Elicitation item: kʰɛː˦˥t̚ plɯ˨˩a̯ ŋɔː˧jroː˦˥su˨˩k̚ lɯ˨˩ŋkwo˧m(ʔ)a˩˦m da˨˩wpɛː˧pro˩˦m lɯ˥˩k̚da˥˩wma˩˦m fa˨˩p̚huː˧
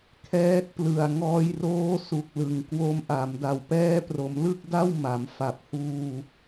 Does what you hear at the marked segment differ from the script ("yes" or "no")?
no